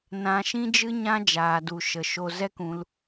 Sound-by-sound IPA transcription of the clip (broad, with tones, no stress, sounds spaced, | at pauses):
n ã˧ ʃ ĩ˦ d͡ʒ ɨ˦ ɲ ã˦ d͡ʒ aː˨ d u˨ ʃ ə˨ ʃ o˧ z ɛ˦ k ũ˧ l